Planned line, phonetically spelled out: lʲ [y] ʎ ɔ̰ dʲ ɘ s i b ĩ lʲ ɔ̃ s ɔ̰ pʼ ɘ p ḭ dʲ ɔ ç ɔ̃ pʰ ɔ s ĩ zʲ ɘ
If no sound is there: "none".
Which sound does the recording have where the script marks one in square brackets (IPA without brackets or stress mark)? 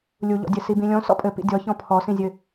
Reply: u